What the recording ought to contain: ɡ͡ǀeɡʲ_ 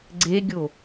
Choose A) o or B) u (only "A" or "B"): A